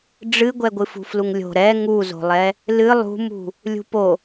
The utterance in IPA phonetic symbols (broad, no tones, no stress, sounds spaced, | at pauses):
ɖ͡ʐ ɨ ɡʷ ɛ ɡʷ ɨ f ṳ f l u ŋ lʲ o̤ ɾ ɛ ŋ u z o̤ lˠ ɛ | l ɨ lˠ ṳ m ṳ | lʲ ṳ p o